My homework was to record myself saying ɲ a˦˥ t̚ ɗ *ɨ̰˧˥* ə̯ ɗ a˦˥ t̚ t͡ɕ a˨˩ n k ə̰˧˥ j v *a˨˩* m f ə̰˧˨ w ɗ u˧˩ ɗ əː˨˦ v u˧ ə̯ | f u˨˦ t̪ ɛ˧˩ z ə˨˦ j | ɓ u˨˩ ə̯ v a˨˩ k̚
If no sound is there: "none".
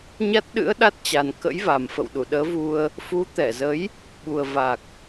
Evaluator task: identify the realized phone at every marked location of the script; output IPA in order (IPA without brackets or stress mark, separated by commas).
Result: ɨ̰˧˥, a˨˩